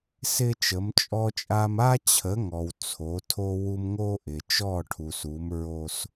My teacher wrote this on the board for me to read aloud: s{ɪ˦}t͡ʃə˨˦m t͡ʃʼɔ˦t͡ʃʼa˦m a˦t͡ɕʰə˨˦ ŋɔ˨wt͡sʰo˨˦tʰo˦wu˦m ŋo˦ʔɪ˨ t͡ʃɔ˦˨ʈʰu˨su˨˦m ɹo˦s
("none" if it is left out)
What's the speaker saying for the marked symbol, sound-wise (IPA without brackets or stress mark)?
ɪ˦